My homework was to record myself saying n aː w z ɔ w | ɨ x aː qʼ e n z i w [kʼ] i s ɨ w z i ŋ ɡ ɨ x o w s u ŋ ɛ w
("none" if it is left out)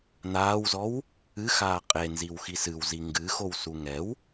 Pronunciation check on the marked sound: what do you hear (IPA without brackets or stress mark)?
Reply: x